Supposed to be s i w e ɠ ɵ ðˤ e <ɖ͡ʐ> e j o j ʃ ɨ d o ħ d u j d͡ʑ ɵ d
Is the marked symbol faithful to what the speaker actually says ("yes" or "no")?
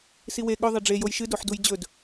yes